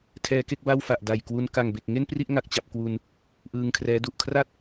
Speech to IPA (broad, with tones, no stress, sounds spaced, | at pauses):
tʰ ɛː˧ k e˥˩ k̚ b a˥˩ w f a˨˩ ʔ d a˨˩ j k w u˦˥ n k a˨˩ ŋ b e˨˩ k̚ ŋ e˥˩ n p r i˥˩ ʔ ŋ a˨˩ k̚ t͡ɕ a˨˩ p̚ k w u˧ n | ʔ ɯː˧ ŋ kʰ r ɛː˦˥ d u˨˩ ʔ kʰ r a˥˩ t̚